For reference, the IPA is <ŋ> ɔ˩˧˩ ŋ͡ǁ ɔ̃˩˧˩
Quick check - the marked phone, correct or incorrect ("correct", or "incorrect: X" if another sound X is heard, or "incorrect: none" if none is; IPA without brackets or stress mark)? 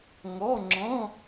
correct